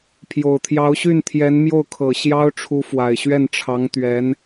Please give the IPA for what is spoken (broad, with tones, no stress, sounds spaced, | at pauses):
pʰ j o˨˩ ʊ̯ t̪ʰ j ɑ˧˥ ʊ̯ ɕ y˥˩ n t̪ʰ j ɛ˧˥ n m j o˥˩ ʊ̯ kʰ ɤ˨˩ ɕ j ɑ˥ ʊ̯ ʈ͡ʂʰ u˧˥ f w a˨˩ ɪ̯ ɕ ɥ ɛ˥˩ n ʈ͡ʂʰ ɑ˧˥ ŋ t̪ ɥ ɛ˧˥ n